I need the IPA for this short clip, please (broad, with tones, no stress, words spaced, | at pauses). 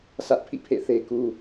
sä˦ʔpʰḭ˦˨pʰḛ˦˨θe˦ ku˦